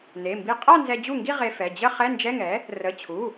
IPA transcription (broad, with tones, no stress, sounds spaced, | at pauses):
n e˩˧˩ m b i˧ qʼ a˥˧ n z ɛ˧ d͡ʑ u˥˩ ŋ ɡ i˥˧ ʁ e˧ f ɛ˩˧˩ d͡ʑ ə˥˧ χ ɛ˧˥˧ n d͡ʒ ɛ˧˥˧ ŋ ɛ˩˥ | r ə˩˧˩ t͡ɕʰ u˩˧˩